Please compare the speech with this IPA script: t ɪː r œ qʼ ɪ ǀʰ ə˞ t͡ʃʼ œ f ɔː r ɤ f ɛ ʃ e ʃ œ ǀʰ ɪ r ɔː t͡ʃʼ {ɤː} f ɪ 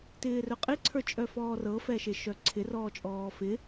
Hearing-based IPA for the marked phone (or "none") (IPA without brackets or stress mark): ɔː